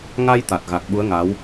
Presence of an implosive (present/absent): present